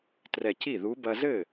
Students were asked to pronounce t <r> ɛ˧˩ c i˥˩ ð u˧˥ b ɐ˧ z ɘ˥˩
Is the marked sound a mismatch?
no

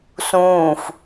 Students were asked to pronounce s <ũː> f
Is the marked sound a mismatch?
no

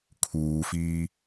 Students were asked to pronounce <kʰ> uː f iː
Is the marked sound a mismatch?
no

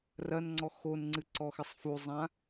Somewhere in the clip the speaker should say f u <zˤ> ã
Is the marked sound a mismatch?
no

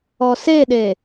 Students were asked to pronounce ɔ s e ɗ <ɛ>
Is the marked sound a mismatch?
yes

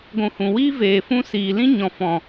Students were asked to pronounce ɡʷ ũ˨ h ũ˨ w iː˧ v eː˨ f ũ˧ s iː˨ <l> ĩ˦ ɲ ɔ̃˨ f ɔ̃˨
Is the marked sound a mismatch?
no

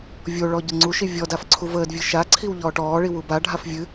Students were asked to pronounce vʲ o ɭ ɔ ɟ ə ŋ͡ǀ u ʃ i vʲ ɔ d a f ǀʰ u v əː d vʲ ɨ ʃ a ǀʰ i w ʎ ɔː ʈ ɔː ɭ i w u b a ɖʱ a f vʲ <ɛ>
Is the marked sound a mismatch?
yes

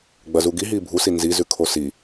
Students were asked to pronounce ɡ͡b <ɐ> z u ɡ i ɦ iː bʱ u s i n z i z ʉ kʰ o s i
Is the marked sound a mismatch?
no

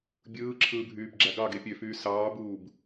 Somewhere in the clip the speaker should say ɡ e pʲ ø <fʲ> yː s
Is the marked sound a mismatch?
yes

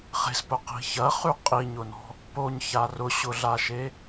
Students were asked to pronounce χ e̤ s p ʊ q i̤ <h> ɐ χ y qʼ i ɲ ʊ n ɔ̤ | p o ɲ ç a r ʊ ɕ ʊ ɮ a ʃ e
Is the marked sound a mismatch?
yes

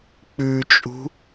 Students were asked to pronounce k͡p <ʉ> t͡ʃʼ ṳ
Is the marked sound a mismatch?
no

